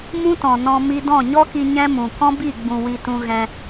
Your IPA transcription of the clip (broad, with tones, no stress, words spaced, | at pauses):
mũ˦tɔ̃˨ nɔ̃˧ mi˧dɔ̃˦˨ɲɔ˦ki˧ ɲɛ̃˦mũ˨ kɔ̃˦bi˦˨ɡ͡bũ˨ wi˧tũ˧ ɣɛ̃˧